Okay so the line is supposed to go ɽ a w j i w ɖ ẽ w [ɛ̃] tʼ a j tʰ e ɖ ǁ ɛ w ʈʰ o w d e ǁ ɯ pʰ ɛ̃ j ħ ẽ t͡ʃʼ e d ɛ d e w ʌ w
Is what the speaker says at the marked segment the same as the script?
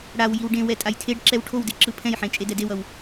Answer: no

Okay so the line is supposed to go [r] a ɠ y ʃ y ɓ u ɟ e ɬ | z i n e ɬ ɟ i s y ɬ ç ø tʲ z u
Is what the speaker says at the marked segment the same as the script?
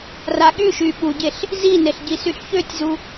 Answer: yes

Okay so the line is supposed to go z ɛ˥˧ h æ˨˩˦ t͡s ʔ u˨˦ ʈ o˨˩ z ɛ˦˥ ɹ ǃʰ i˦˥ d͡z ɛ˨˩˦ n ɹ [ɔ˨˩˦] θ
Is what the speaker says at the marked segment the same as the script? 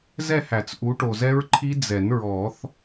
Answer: yes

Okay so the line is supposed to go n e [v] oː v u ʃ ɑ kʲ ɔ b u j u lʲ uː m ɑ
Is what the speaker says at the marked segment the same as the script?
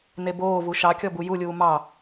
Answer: no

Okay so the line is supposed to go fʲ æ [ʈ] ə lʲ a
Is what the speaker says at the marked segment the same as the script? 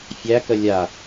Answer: no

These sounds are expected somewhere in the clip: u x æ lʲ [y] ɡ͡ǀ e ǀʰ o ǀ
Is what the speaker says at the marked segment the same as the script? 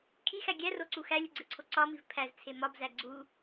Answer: no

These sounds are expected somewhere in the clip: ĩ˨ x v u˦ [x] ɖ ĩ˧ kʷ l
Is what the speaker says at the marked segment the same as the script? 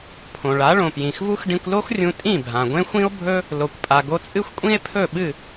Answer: yes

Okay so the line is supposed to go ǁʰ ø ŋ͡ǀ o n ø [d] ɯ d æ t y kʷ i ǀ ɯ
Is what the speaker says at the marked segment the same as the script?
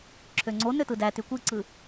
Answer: no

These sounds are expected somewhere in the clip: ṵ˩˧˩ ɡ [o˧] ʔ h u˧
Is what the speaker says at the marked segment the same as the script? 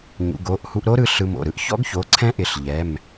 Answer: no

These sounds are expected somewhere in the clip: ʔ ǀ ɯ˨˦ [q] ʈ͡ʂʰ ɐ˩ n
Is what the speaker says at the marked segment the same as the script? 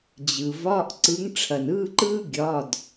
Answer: no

